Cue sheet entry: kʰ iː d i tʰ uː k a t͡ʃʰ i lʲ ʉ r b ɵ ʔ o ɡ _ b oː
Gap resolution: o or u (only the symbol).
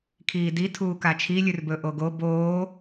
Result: o